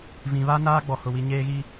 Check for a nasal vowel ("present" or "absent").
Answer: present